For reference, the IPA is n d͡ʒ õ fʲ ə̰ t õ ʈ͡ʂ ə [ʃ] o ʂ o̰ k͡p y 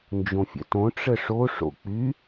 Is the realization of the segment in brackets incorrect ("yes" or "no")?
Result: yes